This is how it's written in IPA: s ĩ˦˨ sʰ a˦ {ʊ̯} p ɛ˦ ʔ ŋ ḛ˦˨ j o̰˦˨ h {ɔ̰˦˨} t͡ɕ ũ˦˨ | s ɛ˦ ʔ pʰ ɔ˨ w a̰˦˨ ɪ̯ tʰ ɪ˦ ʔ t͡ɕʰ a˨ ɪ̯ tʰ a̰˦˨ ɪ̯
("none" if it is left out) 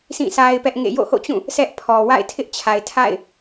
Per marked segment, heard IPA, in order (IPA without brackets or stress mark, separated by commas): ɪ̯, o̰˦˨